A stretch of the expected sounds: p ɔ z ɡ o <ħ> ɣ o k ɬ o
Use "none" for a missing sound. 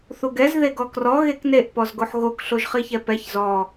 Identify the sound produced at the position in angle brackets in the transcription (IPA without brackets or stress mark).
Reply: ħ